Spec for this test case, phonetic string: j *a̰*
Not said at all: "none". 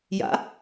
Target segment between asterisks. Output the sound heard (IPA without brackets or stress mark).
a̰